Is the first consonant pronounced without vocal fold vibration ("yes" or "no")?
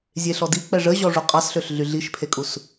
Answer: no